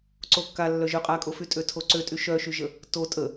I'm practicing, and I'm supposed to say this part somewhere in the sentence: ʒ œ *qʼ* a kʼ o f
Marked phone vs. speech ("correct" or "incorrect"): correct